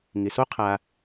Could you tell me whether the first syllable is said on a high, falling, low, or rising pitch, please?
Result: low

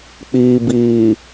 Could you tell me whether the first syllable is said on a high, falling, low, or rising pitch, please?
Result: low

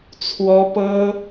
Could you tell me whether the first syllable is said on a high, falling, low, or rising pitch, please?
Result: high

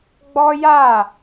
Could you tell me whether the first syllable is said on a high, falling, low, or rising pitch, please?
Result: high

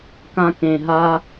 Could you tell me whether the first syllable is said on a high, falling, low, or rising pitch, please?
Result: high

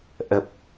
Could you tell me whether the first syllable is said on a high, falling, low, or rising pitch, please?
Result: low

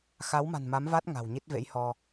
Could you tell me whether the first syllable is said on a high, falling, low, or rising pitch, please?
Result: rising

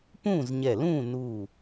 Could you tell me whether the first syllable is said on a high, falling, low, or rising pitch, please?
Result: falling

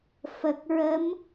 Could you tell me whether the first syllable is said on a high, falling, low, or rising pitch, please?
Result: low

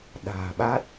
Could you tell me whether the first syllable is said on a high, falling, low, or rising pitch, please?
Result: low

